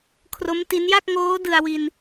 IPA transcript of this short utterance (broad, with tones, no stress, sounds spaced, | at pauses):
kʰ r o˦˥ m t i˦˥ n j a˥˩ k̚ ŋ oː˦˥ d ɯ˧ a̯ w i˧ n